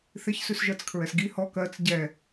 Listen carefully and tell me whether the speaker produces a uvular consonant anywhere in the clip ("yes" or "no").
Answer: no